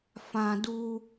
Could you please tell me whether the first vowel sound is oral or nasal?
nasal